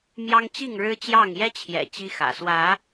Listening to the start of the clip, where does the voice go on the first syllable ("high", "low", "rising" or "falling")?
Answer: high